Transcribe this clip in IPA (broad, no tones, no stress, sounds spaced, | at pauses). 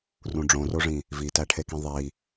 r ũ ɖ͡ʐ õ r o ʐ ĩ | v i t æ ʈʰ e k ĩ ðˤ i